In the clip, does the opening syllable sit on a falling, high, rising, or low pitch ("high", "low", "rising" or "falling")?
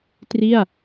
falling